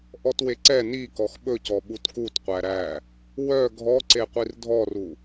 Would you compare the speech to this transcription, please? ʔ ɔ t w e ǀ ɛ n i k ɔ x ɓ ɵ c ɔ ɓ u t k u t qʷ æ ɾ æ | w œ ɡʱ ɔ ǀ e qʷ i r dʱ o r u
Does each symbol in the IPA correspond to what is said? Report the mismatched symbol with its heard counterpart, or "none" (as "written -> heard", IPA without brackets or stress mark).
o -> ɔ